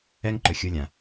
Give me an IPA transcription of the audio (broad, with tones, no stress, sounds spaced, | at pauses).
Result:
ɛ˦ ŋ ǃ ɵ˨ xʲ u˦ lʲ ã˨